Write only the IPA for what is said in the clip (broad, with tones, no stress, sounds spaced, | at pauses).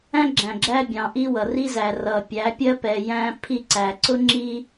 æ̃˦ ɡ͡ǁ æ̃˨ ɡ͡ǁ æ˦ bʲ ɑ̃˨ ʔ i˦ w ʌ˨ r i˦ z æ˨ r ʌ˨ pʲ æ˨˦ pʲ ɜ˦ p ɛ˨ j æ̃˦ pʰ i˦ ǀ æ˨ ǀ ʊ˦ ŋ͡ǁ i˦